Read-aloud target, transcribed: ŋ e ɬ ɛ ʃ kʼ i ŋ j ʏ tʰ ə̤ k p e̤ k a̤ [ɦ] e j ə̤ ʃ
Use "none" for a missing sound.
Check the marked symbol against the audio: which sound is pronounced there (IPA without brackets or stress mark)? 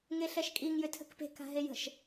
ɦ